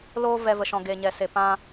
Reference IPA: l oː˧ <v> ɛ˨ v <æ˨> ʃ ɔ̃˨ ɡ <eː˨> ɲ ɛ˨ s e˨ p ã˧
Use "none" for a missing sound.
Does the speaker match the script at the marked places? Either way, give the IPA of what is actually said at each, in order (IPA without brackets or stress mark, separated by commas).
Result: v, ə˨, e˨